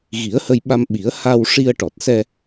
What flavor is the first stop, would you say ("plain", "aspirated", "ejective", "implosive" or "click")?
implosive